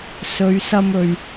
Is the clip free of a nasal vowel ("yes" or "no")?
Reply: yes